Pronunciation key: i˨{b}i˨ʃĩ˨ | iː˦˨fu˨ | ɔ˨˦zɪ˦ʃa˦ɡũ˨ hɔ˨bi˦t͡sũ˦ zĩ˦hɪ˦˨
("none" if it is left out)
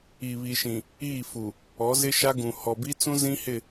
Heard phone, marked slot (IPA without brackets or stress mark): β